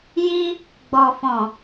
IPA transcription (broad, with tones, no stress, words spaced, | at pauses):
ji˧ | ɡ͡bɔ˨fɔ̃˨